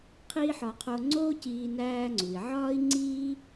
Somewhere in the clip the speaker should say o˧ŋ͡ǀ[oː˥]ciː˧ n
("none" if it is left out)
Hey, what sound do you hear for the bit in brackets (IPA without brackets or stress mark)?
oː˥